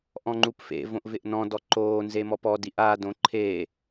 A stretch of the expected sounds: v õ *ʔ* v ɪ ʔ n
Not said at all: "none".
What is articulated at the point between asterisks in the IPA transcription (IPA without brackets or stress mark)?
ʔ